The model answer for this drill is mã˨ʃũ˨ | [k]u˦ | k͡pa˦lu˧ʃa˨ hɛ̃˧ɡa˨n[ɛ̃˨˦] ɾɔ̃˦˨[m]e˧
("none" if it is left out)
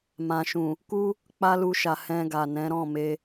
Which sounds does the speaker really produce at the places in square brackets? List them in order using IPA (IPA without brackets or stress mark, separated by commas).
k, ɛ̃˨˦, m